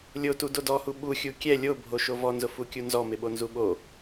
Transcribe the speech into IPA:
lʲ o t u d o d ɔ h u ɓ u xʲ u kʲ ɛ lʲ o bʱ o ʃ o v ɔ n z ʊ f u kʲ u n z ɔ m ɪ ɓ o n z u ɓ o

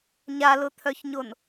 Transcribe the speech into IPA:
ɲ a l ʊ t̪ʰ œ ç ɲ o n

